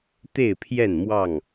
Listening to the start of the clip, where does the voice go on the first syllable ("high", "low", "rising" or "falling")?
falling